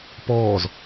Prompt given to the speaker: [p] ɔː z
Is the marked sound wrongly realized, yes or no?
no